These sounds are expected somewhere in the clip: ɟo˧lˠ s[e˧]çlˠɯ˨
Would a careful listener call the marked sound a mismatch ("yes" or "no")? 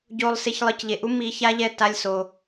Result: no